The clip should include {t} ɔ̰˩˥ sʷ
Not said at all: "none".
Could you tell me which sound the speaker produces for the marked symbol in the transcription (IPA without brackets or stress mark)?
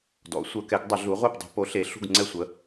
d